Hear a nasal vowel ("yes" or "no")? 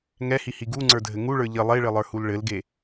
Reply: no